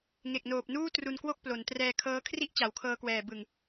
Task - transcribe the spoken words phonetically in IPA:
ŋe˨˩k̚noː˨˩p̚nuː˥˩ tru˧nkwo˥˩k̚plo˩˦n trɛː˧kʰɤː˦˥ kʰri˥˩ʔt͡ɕa˩˦wkʰɤː˧kwɛː˨˩ bɯ˨˩ŋ

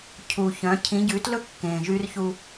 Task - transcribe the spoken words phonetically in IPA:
cʰu˨çœ̃˨˦ cʰĩ˨˦ɟʉ˨˦tlɵ˦ kːẽː˨ʒy˦rçu˦

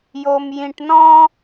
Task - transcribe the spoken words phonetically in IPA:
jo˧mjĩ˧ʈnɔ̃˥

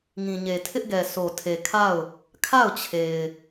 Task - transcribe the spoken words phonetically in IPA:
ŋĩ˨ɲe˨tʰɪ˦ʔɡɛ˨ so˨tʰe˨kʰa˦˨ʊ̯ | kʰa˦˨ʊ̯t͡ɕʰe˨ɪ̯

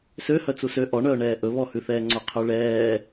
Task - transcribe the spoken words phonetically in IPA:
sø hœt͡susø ʔɔɳœːɳɛː ʔɵβɔhʉθɛː ŋ͡ǀoqʰʉɭɛː

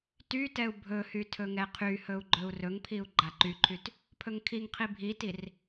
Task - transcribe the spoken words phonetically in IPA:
tytɛu̯ bʱɵhy tʰɵŋɛqʰyhɵu̯ ɡ͡ǃɵu̯rɵŋpʰiu̯ ɡ͡ǃaǃyǃʰyt | pʰɵŋkʰiŋqʰi bʱitir

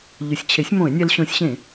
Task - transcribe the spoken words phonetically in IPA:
ʎɵ˩˥sʲt͡ɕʰe˩˥sʲmõ˧˩˧ɪ̯nʲɛ˧l ɕõ˧˩˧sʲɕẽ˧˩˧

